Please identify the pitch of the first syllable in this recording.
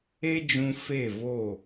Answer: high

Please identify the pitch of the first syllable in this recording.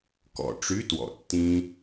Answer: low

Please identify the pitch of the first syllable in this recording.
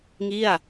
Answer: falling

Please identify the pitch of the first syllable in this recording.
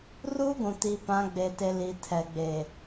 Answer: high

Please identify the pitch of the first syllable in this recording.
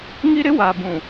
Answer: high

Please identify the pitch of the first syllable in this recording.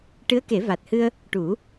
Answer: rising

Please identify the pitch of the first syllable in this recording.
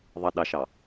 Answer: low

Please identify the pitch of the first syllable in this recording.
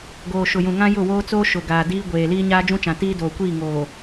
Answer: low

